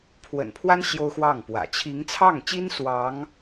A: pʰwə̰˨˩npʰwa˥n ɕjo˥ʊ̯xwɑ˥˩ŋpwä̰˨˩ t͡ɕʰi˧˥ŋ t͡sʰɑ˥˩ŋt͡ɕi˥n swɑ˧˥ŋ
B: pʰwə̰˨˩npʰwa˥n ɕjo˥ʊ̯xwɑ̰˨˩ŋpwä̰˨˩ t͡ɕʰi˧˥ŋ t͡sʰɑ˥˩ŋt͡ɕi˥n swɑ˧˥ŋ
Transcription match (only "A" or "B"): A